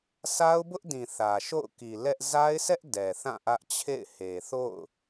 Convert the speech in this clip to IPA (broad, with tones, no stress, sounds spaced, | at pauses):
s a˦ ʊ̯ b ʊ˦ ʔ d ĩ˨ θ ä˨ ʃ o̰˦˨ ʊ̯ k i˨ l ɛ˦ ʔ z a˦ ɪ̯ s ɛ˦ ʔ d ɛ˨ θ ã˦˨ ʔ ä˦ ʔ t͡ɕʰ ḛ˦˨ ɪ̯ h e˨ θ o̰˦˨ ʊ̯